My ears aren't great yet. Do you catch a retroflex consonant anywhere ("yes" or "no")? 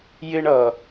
yes